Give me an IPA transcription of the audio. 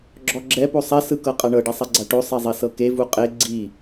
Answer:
ɡ͡ǁ ɔ ɡ͡ǁ ɛ p o sˤ ɛ s ɯ k ɤ qʼ a ɳ ɤ ɖ i sˤ ɛ ɡ͡ǀ a ʈ o sˤ e zˤ i s ɤ k e v u qʼ e ɡ͡ǀ i

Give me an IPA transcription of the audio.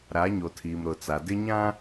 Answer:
ɾ a˨˦ ɲ o˨ tʰ iː˨ m ɾ ʊ˨ t͡s a˨ d ɪ˦ ɲ ã˦

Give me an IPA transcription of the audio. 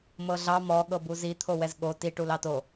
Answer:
m ɤ ɮ ɑ m ɔ ɠ ɤ b u z i t̪ʰ o w ɛ z ɠ o t i ʈ u l ɑ t o

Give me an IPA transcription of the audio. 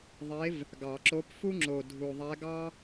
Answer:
ðˤ e˧˥ v | ɡ ɑ˨˩˦ ǁ o˧˥ p f u˥ ŋ͡ǁ o˨˩ dʱ u˨˩ ðˤ æ˧˥ ɡ ɑ˥

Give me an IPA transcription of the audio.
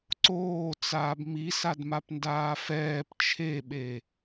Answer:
ǀ oː t͡s aː b m i s a d m a p n d aː f ɛː p t͡ʃʰ e ɓ e

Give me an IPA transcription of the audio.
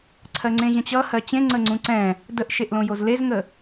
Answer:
ǀʰ ɜ ŋ͡ǀ ẽ ʑ ə̃ t͡ɕ ʌ h ɜ t͡ɕ ẽ ŋ͡ǀ ə ŋ͡ǀ ũ ǀ ɛ̃ | d ə ʔ ʃ e ʔ l õ j o z l e z ŋ ə

